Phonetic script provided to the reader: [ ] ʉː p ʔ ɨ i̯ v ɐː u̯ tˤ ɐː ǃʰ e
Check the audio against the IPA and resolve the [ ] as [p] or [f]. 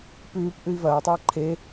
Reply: p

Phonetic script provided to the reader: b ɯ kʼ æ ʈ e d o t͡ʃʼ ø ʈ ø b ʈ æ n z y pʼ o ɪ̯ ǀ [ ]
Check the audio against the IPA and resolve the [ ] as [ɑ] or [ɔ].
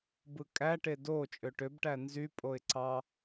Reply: ɑ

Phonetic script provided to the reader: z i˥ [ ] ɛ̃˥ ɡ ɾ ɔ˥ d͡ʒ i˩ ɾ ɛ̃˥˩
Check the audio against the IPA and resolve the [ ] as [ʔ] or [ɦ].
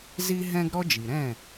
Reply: ɦ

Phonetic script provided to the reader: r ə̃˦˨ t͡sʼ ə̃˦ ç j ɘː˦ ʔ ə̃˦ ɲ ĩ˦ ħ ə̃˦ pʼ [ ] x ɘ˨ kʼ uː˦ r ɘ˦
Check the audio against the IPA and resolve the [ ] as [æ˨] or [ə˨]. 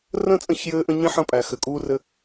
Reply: æ˨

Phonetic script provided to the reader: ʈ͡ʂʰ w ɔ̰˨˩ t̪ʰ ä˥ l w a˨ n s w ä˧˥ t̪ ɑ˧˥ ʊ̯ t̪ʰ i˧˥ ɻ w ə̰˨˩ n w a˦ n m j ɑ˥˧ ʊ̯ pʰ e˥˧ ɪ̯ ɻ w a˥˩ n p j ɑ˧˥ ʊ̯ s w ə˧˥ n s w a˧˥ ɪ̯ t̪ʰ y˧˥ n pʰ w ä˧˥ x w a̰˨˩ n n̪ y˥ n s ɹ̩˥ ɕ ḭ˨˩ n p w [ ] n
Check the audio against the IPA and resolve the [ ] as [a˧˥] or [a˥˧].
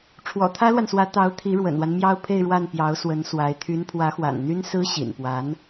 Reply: a˧˥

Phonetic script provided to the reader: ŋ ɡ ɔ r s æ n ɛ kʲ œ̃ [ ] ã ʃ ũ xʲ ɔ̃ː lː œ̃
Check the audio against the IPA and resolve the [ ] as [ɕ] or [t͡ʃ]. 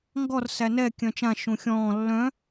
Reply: t͡ʃ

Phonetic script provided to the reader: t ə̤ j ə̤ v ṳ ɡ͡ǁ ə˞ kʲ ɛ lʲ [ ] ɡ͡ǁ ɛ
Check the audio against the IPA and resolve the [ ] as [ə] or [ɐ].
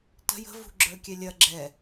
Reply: ɐ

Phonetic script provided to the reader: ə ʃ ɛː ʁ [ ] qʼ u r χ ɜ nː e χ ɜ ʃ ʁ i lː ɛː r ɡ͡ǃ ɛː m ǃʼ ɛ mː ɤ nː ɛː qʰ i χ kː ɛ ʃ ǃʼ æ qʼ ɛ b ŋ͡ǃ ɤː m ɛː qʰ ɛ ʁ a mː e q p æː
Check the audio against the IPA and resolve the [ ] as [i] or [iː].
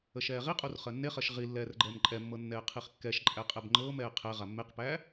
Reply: i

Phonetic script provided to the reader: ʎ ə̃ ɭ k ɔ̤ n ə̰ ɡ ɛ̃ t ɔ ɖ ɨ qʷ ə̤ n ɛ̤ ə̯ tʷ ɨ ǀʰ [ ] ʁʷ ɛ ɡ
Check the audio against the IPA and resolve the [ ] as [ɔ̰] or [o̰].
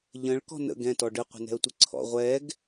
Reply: ɔ̰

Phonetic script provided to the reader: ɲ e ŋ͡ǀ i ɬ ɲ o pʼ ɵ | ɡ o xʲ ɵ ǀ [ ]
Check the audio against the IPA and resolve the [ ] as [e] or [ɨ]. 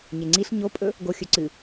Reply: ɨ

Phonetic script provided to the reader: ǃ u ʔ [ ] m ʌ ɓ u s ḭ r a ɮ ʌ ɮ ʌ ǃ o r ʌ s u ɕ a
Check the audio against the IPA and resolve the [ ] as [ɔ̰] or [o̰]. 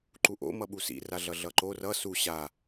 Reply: o̰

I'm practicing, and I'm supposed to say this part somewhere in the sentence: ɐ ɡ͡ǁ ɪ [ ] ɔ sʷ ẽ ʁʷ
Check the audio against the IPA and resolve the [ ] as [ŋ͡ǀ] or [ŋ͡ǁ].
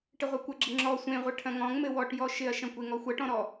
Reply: ŋ͡ǁ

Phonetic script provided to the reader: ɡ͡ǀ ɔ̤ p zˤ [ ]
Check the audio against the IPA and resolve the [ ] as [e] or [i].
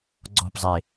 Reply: e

